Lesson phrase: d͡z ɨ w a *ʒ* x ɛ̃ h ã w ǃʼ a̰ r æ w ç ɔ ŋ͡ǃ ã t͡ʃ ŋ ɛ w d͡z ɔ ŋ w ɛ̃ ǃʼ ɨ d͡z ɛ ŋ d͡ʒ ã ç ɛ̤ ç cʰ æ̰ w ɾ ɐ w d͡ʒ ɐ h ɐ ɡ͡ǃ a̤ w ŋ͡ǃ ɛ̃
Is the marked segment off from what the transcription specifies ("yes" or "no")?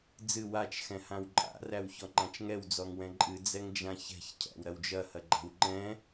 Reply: yes